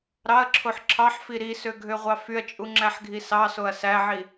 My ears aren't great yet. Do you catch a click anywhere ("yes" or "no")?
yes